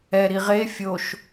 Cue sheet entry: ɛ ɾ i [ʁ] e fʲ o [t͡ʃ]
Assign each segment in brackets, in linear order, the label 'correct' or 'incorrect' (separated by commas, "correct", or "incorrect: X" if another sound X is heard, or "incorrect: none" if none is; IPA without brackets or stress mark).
correct, incorrect: ʃ